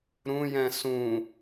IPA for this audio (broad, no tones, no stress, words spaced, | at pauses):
ɾũjɛ̃ sũ